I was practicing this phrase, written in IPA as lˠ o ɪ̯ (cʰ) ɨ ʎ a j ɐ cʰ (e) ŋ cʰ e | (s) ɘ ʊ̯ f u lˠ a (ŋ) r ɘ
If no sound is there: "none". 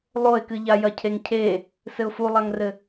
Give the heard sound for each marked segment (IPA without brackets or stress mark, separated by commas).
k, e, s, ŋ